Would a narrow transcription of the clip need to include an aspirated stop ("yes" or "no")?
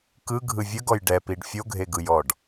no